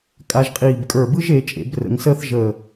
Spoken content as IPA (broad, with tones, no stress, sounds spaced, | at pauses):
kʼ a˧ ʒ qʼ iː˧˩ b kʼ ə˞˧˩ b ɯ˥ ʒ e˩˧ t͡ʃʼ ḛ˩˧ b r ə̰˩˧ ŋ s əː˥ θ ʒ əː˧˩